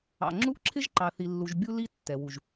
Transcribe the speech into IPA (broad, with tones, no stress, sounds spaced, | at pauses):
ɑ̰˨ ŋ͡ǁ u˦ ʔ ǁʰ ɪ˦ ʒ ǃ ɑ˨ θ i˨ lː u˨ ʒ bʲ u˦ l i˦ tː ɛ˨ w u˨ ʒ